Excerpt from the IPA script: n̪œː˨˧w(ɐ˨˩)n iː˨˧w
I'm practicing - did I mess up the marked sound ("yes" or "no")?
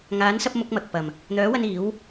yes